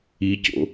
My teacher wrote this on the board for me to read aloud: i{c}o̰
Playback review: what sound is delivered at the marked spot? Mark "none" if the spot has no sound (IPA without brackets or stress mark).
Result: c